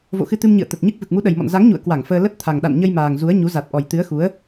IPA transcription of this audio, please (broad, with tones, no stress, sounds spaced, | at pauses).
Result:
v o̰˧˨ x ɨ˧ t̪ ɨ˧ m ɲ ɨ̰˧˨ ə̯ t̪ ə˨˩ t̚ ɲ ɨ˦˥ k̚ v ɨ˨˩ k̚ m u˨˦ ɗ ə˨˩ j m ɔ̰˧˨ n z a˨˦ ŋ ɲ ṵ˧˨ ə̯ k w a˧˩ ŋ f əː˧ l ə˦˥ t̚ t̪ʰ a˨˩ ŋ ɗ a̰˧˨ n ɲ ə˧ j m aː˨˩ ŋ z u˨˦ ə̯ ɲ u˨˦ z a˨˩ t̚ ʔ ɔ˨˩ j t̪ ɨ˨˦ ə̯ x u˨˦ ə̯